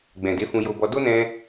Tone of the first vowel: low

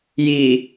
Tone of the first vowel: low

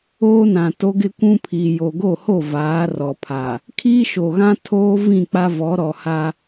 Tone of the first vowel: high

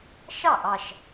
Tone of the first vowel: falling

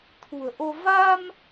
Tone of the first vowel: low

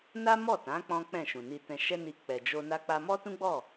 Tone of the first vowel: high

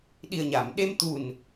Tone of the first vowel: low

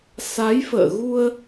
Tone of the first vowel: rising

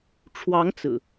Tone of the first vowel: rising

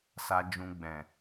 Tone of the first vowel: low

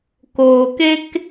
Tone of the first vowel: low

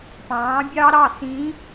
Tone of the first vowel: rising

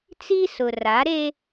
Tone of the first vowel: high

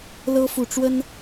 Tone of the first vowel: high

